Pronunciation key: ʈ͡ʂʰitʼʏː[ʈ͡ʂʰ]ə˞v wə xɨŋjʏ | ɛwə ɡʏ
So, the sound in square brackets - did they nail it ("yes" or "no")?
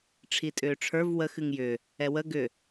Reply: yes